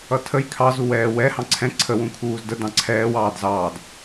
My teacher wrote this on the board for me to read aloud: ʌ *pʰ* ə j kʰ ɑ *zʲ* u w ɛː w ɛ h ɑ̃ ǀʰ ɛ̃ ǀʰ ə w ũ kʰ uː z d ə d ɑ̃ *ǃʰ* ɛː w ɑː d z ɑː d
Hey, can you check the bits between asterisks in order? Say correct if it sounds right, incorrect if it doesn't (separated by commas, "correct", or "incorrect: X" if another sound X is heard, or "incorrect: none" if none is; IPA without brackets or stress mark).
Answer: incorrect: tʰ, incorrect: z, incorrect: ǀʰ